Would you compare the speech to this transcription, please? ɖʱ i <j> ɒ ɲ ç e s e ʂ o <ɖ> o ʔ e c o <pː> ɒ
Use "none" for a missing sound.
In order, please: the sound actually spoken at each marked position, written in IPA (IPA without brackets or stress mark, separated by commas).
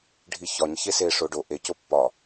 ç, ɖ, pː